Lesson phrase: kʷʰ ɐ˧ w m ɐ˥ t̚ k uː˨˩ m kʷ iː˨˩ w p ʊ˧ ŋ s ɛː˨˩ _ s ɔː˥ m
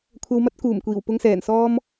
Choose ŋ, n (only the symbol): n